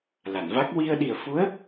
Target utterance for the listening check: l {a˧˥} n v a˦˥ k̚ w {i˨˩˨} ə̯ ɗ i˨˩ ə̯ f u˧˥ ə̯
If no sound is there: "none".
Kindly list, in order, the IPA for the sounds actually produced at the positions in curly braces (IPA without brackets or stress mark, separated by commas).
a˨˩˨, i˧